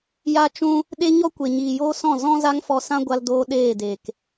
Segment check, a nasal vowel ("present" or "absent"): present